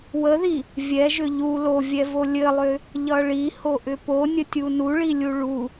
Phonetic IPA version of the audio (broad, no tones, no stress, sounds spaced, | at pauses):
w ə ð i | vʲ ɛ ʒ ʏ ʎ u l o vʲ ɛ v o lʲ ɘ lˠ ʏ | ʎ ʌ ɭ i h o ʔ ʏ p o nʲ ə tʲ u n u ɭ i lʲ u ɭ u